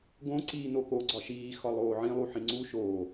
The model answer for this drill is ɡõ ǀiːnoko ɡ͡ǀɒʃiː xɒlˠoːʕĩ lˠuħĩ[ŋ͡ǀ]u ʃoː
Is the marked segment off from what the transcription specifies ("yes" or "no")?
no